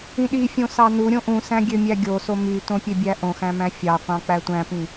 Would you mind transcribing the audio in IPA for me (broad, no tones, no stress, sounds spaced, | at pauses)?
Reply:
ĩ ɗ i fʲ õ s ɑ n u ɾʲ õ ʔ ũ s æ̃ ɡʲ ø mʲ æ ɡʲ o s o m y t õ pʲ ø bʲ æ ʔ õ x æ̃ m æ̃ fʲ ɑ qʷ ɑ̃ k͡p æ tʷ æ̃ p ĩ